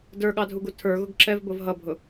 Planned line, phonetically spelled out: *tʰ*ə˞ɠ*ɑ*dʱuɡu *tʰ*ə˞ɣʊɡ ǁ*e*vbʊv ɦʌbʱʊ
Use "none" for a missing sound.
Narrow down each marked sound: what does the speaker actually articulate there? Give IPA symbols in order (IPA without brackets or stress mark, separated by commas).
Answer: d, ɑ, tʰ, ɛ